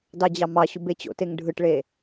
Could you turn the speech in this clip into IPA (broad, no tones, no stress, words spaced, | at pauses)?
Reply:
dɑd͡ʑɑmɑɕu bet͡ɕo̰teŋ ɖʱɯʈɭe